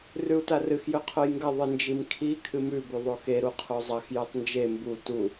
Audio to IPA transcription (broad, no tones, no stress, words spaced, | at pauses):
rʉu̯tarɨx jɵqʰojŋɡɐ ðˤɨnd͡ʒimkʰi kʰɨmʉ bʉðˤoxe ɾuqʰozˤɐx jʉtˤnd͡ʒe mbu tu